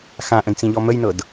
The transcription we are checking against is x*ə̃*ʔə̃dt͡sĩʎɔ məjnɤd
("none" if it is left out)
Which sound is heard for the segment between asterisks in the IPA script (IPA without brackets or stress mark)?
ã